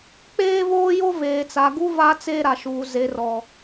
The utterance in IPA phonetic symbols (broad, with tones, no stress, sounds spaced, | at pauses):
k͡p eː˦ v oː˦ j o˦ v eː˨ t͡s a˨ ɡ u˦ v a˦ t͡s eː˦ ɾ a˨ ʃ uː˨ z e˨ r ɔ˨